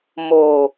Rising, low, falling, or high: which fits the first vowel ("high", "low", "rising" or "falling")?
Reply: low